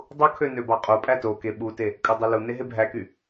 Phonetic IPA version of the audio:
dˤ u kʰ ø n ø b ɑ qʼ o pʼ æ t o k e ɓ u t e | kʼ ɯ dˤ u l u n e ɦ e bʱ æ k y

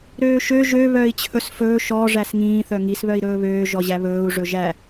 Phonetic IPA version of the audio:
ɾ øː ʃ ø ʒ ø β œː i̯ t͡ɕʰ ɵ s f ɵː ʃ ɔ ʐ æ s ŋ ĩː θ œ ŋ i s β œ i̯ ɾ ɵː β øː ʒ ɔ ʑ æ β ɵː u̯ ʐ ɵ ʒ æ

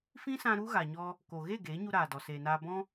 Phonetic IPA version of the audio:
f ĩ˦ s ã˧ ɾ u˦ ɣ a˨ ɲ ɔ˧ | k o˨ ɣ e˦˨ ɡ eː˨˦ ɲ u˧ ɾ aː˨ d ɔ˨ s eː˨ n aː˧ b ɔ̃˦

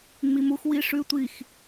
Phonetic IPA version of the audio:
ŋ͡m i m u x w i ʂ ʉ tʷ i x

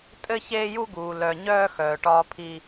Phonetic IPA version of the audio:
tʼ ɘ˦ ç eː˦ j u˦ ɡ uː˨ l œ˨ ɲ œː˦ x œː˨ ʈ ɒː˦ pʰ i˦

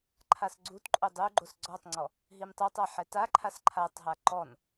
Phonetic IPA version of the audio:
ǃʰ a s ɡ͡ǀ u t ǃʼ o dˤ u ɡ͡ǃ o s ɡ͡ǀ ɔ tˤ ŋ͡ǀ ɔ | ɦ i m tˤ ɤ tˤ a ħ ɛ t a ǃʰ a s ǃʰ a tˤ ɦ a ǃ ɔ n

